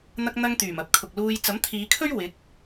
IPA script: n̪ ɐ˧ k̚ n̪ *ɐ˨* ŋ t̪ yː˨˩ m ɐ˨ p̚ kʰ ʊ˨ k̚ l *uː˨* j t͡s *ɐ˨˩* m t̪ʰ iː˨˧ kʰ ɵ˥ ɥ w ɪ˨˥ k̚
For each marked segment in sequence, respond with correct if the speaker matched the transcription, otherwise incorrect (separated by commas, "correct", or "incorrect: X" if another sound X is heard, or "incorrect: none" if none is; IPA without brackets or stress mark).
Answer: incorrect: ɐ˧, incorrect: uː˧, incorrect: ɐ˨˥